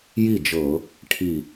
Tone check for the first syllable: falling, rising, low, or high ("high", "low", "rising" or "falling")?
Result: falling